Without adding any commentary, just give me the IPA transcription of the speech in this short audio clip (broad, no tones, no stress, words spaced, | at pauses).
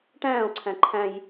ʈæ̃ːo̯ǀʰæ̃ ǃʰæ̃j